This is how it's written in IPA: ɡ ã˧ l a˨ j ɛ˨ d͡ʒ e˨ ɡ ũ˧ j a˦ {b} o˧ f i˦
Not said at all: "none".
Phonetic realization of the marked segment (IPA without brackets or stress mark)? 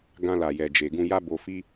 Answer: b